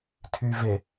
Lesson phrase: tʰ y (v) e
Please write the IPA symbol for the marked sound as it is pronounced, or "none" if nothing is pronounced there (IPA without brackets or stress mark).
v